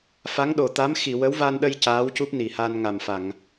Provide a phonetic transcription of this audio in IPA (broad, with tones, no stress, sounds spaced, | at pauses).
f a˧˥ ŋ ɗ o˨˩ t̪ a˧˥ m x i˨˩˨ w ə˧˥ w v a˧ n ɗ ə˧ j c aː˧˥ w c u˦˥ p̚ n i˨˩ h a˧ n ŋ a˨˩ m f a˨˩˨ ŋ